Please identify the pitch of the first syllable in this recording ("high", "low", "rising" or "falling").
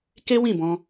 high